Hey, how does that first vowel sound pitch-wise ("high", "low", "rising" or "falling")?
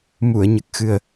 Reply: low